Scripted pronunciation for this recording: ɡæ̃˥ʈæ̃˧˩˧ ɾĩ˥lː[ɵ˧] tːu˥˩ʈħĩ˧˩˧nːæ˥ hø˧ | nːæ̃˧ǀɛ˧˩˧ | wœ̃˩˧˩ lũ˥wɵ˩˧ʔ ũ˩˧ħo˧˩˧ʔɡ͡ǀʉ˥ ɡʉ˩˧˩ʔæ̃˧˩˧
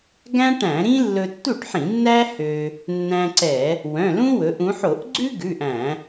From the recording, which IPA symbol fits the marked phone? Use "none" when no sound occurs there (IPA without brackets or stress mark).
ɵ˧